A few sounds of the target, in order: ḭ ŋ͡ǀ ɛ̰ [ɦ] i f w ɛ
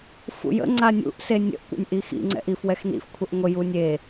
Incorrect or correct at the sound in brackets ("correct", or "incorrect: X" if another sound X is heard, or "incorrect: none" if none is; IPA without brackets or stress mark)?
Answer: incorrect: ʔ